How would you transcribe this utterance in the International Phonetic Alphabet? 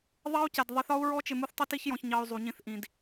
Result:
ðˤ ɑ˦ u̯ c ɛ˨ d ðˤ ɪ˧ θ ɒ˦ u̯ ɹ ɔ˦ t͡ʃ ɪ˧ m u˦ θ tˤ i˦ t i˦ ç j ɔ̃˧ ç ɲ ɑ˧ y̯ zˤ u˨ ɲ ĩ˧ θ ʔ ĩ˨ d

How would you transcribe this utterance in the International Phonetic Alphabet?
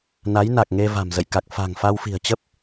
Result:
n a˨˦ j n a˨˩ k̚ ŋ e˧ v a̤˨˩ m z ə̰˧˨ j k a˨˩ k̚ f a̤˨˩ ŋ f a˧ w f i̤˨˩ ə̯ t͡ɕ ə˦˥ p̚

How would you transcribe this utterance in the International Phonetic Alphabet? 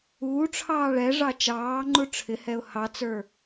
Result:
uː ʈ͡ʂʰ ɑː ɭ ɛ ʐ ɑ t͡ʃ ɑː ŋ͡ǃ u ʈ͡ʂʰ ɪ h ɛ ʊ̯ h ɑ t͡s ə˞

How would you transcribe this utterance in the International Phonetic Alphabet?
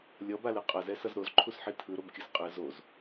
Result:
lʲ ʌ b a l ɯ qʼ ʌ z ɛ s ʌ z ɾ o z ǃʰ u s ħ i tʰ ɯ ɾ o b kʲ ɯ s qʼ ɯ z o z

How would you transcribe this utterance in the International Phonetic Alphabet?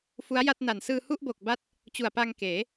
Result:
f u˦˥ a̯ j a˥˩ t̚ n a˨˩ n s ɯː˧ h u˥˩ ʔ b o˨˩ k̚ b a˦˥ t̚ | t͡ɕ u˨˩ a̯ p a˧ ŋ k eː˩˦

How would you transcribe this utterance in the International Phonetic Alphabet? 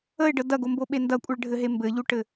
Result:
ə ɪ̯ ɖ ə d ɐ ɡ o m b o ɓ e n d ɐ kʷʼ ɘ ɭ ɖʱ ɘ ɦ e m b ɘ ʎ u ʈ ɘ

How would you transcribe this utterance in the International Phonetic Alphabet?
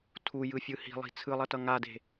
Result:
tʰ u j ɯ fʲ ɯ h i̤ lˠ i̤ t͡sʰ ɯ lˠ ʌ t ʌ ŋ a d e̤

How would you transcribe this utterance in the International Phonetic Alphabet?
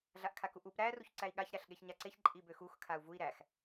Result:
ɮ a ʔ kʰ a k u ʔ u p ɾ æ r u ç ǀ æ i̯ ɠ a ç ɾ æ ɬ ɠ e ç ɲ a ǀ e ç ǃʼ i b ø x u x kʰ a u̯ v u i̯ ɾ æ x

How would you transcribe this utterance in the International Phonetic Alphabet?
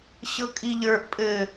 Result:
ɕ ɤ kʼ i ʎ ə˞ ʔ pʼ ɘ

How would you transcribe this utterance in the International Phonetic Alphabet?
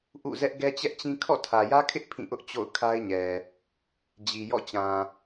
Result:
ʔ ṵ˦˨ z ɛ˦ ʔ ɡ ɛ˦ t͡ɕ ɛ˦ ʔ t͡ɕ ĩ˦ kʰ ɔ̰˦˨ tʰ ä˨ j ä˦ kʰ ɪ˦ ʔ pʰ ĩ˦˨ ʔ ʊ˦ ʔ t͡ɕ o̰˦˨ ʊ̯ kʰ a˦ ɪ̯ ɲ ɛ˨ | d͡ʑ i˨ j ɔ̰˦˨ t͡ɕ ã˨

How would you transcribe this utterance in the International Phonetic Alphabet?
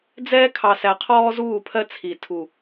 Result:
d͡z ɛː˦ kʰ ɑ˨ s æ˨ qʰ ɔː˦ z uː˦˨ pʰ ɜ˦ t͡sʰ i˨ tʰ u˨

